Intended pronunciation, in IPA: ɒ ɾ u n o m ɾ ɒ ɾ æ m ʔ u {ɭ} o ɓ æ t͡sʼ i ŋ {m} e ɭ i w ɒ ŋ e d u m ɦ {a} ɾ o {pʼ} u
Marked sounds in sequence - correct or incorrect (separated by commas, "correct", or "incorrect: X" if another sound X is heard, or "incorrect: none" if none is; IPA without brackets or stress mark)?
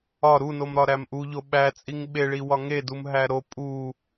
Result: incorrect: ʎ, incorrect: ɓ, incorrect: æ, correct